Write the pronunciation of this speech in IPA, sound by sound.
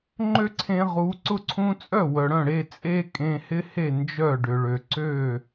ŋ͡ǃø˥ǀʰẽ˧ʁu˩˥ ǀʊ˥ǀʰũ˥ t͡sʼœ˥˩wœ˩ɽœ̃˥˩ɽe˥˩ t͡sʼe˥kʼẽ˧hɪ˥he˥˩ nd͡ʒœ˥˩ɖʏ˩ɭø˩ ǀø˥˩

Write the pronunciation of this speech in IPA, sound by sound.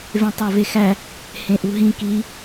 vẽtˤovexæ | hẽʔuɦĩ ki

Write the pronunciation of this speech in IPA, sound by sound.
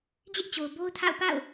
d͡ʑɪ˦ʔt͡ɕo˨ʊ̯ bo˦ʊ̯ tʰa̰˦˨ʊ̯ pa̰˦˨ʊ̯

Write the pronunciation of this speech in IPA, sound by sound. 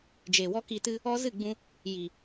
d͡ʒe˨wɔ˦ki˧tɨ˦ | ɔ˦ zɨ˦˨ɡ͡bũ˧ | ji˨

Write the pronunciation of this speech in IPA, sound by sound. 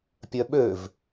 pʲœɓøv

